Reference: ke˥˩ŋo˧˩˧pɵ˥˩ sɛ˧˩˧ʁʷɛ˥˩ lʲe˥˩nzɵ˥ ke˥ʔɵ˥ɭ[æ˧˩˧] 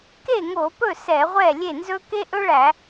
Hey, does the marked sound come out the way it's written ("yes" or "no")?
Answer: yes